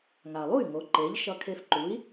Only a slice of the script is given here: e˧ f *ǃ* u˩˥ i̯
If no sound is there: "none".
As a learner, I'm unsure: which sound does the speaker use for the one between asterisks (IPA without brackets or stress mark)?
ǃ